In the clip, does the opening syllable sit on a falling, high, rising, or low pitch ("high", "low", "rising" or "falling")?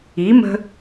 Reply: rising